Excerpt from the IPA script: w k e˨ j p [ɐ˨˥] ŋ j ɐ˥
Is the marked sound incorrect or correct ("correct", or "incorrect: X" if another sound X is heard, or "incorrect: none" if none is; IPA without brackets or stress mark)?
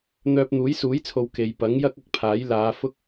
correct